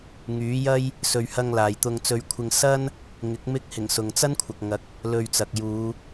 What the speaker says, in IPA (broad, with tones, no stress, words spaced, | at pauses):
ŋyː˨˥jɐ˥j | sɵ˧ɥ hɐ˧ŋlaː˨jt̪ʊ˧ŋ t͡sɵ˧ɥkʷʰɪ˧ŋ sɐ˥n | ŋɪ˨˥k̚ mɪ˧k̚hɪ˨˩ŋ sʊ˨ŋt͡sɐ˥nkʷʰɐ˨k̚ŋɐ˨˥k̚ | lɵ˧ɥt͡sɐ˨k̚ juː˨˧